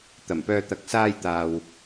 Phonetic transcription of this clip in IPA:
t̪ɐ˨˩m pœː˧t̪ɐ˨˥k̚ saː˧jt̪aː˨w

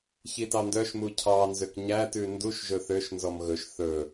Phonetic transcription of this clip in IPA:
çitɑndœʃmu cʰɑnzøk ɲætʉ nduʃʒɵ θøʃnzɔm ɣɵʃ θɵ

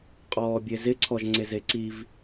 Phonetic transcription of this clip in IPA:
qʼɔːbʲezɪǀʰɔʒ ŋ͡ǀezeǀiv

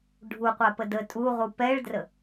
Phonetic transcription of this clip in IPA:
ɖʱuqʷapə də tʼuʁu pɛɭdrə

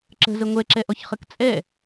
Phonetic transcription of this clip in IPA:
ǁə̤zə ŋʷɛǁɛʔɔçχək t͡sʼɛ

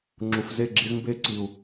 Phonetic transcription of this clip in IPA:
ŋ͡ǁu˨fze˦˨ ɡ͡ǁi˧zmbe˦ ǀi˨u̯

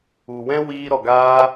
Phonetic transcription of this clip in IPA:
u˨wɛ̃˦ wiː˧ ɾɔ˨ɡaː˧

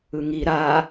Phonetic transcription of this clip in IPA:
ɯŋi ɾa

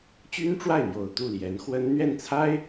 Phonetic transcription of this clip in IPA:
t͡ɕy˥nʈ͡ʂwa˥˩ɪ̯n̪jo˨˩ʊ̯ t̪u˥˩ljɛ˧˥nxwə˥n n̪ɥɛ˥˩nt͡sʰa˥ɪ̯

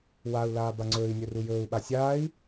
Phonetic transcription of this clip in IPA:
wau̯laː baŋ͡ǀɵːi̯nʲɵ rujɵːu̯ɓa sʲaːi̯

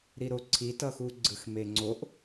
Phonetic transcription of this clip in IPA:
ɾiɾoǀʰi tʌxuɡ͡ǀɯx meŋ͡ǀoʔ

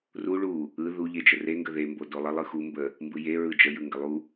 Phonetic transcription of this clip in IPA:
ru ɭu | ɯ ðu ʎed͡ʒəre ŋɡəðe mbodolˠə lˠɯxu mbə | mbɯje ɹɯd͡ʒə jɯŋɡəlˠu

